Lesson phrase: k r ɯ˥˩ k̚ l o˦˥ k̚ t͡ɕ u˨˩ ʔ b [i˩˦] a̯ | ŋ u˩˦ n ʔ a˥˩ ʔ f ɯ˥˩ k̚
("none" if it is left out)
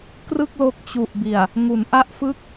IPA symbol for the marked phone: i˨˩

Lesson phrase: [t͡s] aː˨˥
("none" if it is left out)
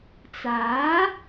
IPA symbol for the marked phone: t͡s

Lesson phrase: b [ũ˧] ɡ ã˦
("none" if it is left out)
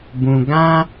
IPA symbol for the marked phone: ũ˧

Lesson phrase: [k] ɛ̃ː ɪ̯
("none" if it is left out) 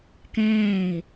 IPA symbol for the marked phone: k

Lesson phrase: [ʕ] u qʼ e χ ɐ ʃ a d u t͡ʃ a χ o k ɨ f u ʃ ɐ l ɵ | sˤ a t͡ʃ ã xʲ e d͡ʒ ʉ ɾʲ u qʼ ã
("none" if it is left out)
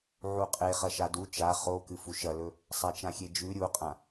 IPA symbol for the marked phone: ʕ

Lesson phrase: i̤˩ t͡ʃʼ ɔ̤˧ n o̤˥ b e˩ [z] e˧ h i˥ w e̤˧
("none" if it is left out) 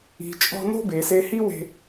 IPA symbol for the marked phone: s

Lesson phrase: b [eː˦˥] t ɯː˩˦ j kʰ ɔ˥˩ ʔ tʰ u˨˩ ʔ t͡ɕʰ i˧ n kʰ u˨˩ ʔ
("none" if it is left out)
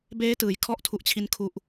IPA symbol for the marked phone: eː˦˥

